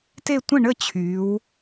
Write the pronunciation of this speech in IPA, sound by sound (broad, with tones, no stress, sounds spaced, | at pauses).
t e˥˨ tʷ ə̃˥˨ ɳ ə˥˨ t͡ɕʰ y˩˧ w